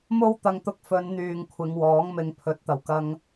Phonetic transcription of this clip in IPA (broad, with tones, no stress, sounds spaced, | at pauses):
m o˥ w t̪ ɐ˧ ŋ t̪ ʊ˧ k̚ f ɵ˨˧ n n̪ yː˨ ŋ kʷʰ ɪ˨˧ ŋ w ɔː˨˥ ŋ m ɪ˨˧ ŋ pʰ ɵ˨˥ t̚ t̪ ɐ˨˩ w k ɐ˧ ŋ